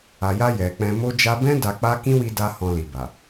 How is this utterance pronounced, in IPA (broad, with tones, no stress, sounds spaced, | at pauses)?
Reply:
a˨ j a˧ j ɛ˨ k͡p ɛ̃˧ m o˧ d͡ʒ a˧ b ɛ̃˦ d a˧ k͡p a˦ k ĩ˦ w i˧ d a˧ h ɔ̃˧ l i˨ b a˨